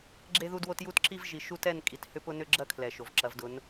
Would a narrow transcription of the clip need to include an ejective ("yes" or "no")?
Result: yes